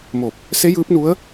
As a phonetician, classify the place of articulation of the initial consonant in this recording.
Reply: labial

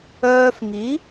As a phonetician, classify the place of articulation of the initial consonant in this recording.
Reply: labial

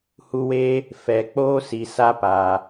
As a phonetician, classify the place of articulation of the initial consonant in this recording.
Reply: glottal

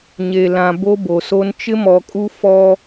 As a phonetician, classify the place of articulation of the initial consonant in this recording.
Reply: palatal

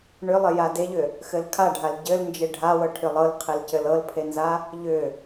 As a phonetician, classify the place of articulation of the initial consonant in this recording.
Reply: retroflex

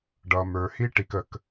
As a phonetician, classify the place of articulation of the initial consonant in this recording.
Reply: retroflex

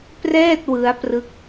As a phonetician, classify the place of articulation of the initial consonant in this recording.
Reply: labial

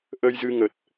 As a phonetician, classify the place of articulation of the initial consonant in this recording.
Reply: glottal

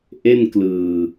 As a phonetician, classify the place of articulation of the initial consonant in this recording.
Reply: glottal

